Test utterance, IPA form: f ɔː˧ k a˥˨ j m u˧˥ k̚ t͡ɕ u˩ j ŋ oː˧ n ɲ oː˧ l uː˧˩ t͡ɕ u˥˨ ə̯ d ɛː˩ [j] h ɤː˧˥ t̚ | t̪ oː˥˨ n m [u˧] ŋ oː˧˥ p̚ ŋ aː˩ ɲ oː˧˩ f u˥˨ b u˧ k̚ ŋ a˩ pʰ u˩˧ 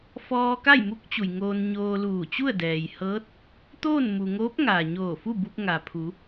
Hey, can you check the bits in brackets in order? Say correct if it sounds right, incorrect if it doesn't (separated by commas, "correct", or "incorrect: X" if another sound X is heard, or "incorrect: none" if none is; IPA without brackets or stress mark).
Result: correct, incorrect: u˩